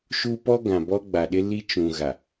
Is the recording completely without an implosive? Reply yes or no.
no